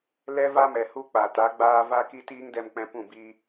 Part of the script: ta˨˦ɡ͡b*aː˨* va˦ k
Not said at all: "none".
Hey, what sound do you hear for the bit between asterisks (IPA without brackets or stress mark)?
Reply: aː˦